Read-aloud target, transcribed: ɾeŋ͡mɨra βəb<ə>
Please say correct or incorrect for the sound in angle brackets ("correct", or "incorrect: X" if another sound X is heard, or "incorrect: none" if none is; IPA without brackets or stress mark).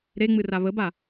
incorrect: a